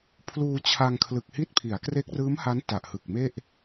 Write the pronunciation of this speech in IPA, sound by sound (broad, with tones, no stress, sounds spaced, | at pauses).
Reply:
pʰ l uː˧ t͡ɕʰ a˧ ŋ kʰ l ɯ˨˩ k̚ h i˦˥ t̚ pʰ i˩˦ a̯ k r e˦˥ k̚ r ɯː˦˥ m h a˦˥ n t a˨˩ ʔ h ɯ˨˩ k̚ m e˥˩ ʔ